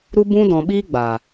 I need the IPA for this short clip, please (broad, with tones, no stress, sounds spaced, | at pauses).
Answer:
ɾ u˦ b ũ˦ d ɔ̃˧ ɓ iː˦ ɡ͡b aː˨